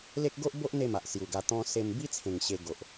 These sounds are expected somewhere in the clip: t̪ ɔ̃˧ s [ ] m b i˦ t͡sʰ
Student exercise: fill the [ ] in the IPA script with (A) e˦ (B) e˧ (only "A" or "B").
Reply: B